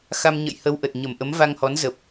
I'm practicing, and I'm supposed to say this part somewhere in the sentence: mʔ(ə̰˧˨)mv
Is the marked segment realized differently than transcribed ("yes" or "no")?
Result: yes